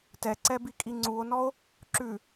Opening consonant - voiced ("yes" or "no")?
no